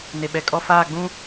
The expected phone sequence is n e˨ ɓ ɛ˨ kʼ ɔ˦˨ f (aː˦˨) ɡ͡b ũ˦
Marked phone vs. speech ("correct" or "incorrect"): correct